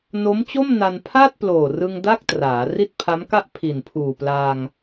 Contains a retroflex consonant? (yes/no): no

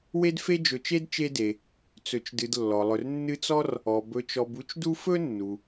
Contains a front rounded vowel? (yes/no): no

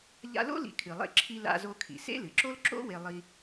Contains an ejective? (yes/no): no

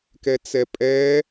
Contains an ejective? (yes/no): yes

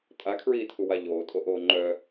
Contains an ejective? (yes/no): yes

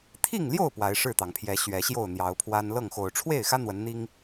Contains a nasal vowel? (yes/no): no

